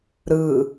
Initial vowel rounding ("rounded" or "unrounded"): unrounded